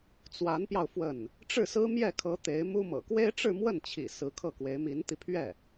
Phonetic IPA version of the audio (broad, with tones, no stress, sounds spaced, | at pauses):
t͡s w a˧˥ n p j ɑ˧ ʊ̯ f w ə˥˩ n | ʈ͡ʂ ɻ̩˥˩ s ɹ̩˥ m j ɛ˥˩ kʰ ɤ˧˥ t̪ e˧˥ ɪ̯ m u˥ m ɤ̰˨˩ k w e˥ ɪ̯ ʈ͡ʂ ɻ̩˥˧ m w ə˥˩ n t͡ɕʰ ḭ˨˩ s ɹ̩˧˥ kʰ ɤ˥˩ k w e˧˥ ɪ̯ m i˧˥ n t̪ i˧ pʰ ɥ ɛ˥˩